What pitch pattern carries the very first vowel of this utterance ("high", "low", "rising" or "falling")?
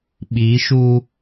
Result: rising